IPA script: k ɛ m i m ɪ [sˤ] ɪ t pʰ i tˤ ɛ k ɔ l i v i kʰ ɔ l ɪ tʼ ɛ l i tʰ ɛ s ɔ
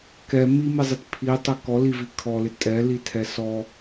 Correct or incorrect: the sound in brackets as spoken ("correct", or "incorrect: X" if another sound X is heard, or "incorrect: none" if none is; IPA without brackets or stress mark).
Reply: incorrect: zˤ